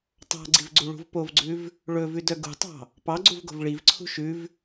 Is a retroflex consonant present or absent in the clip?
present